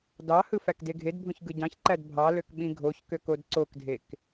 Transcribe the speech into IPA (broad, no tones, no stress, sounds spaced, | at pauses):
d ɑ h ɯ f æ k d e ɡʱ e d bʱ õ ç ɡ ɯ ɟ ɑ̃ ç ǃ æ d bʱ ɑ l ø k ɓ ĩ ɡʱ o ç k ø k o d ǀ o k dʱ e k